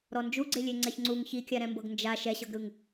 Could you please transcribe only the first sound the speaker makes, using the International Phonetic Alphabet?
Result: ɾ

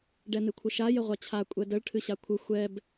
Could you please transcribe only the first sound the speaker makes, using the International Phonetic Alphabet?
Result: ɖ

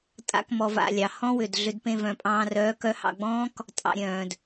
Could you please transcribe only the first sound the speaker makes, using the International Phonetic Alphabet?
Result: tʼ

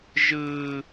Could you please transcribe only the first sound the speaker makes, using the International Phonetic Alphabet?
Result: ʒ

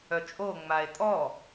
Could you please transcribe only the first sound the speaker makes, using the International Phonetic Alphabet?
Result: œ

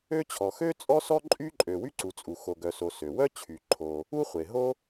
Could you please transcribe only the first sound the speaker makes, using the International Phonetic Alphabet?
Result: ø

